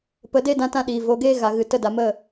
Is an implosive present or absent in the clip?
present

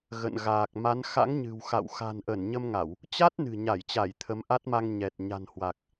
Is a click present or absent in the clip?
absent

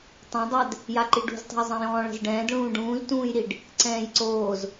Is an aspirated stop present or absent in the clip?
absent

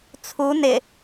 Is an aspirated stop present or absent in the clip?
present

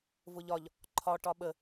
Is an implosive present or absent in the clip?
present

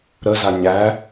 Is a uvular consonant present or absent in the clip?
absent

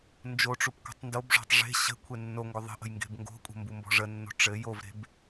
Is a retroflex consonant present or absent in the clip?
present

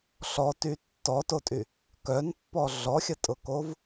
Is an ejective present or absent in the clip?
present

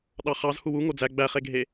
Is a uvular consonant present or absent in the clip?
present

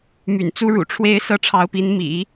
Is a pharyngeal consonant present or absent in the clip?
absent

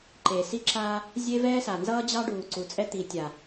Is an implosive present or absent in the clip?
absent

